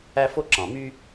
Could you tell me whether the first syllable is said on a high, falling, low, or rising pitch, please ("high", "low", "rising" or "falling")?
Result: high